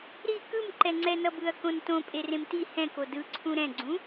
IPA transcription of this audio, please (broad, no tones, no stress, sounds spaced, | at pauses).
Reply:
ɾ i k ɯ m ǃ ɛ ŋ͡ǀ ɛ n ʌ b ɯ ɐ̯ k õ n t õ pʼ e r ẽ m t i h ɛ̃ k o d ɯ ǀʰ ũ ɾ ɛ̃ ɡ͡ǀ ũ